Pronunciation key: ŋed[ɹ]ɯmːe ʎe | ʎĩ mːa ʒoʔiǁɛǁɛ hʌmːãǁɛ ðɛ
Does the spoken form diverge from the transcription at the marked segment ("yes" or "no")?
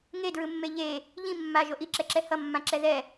no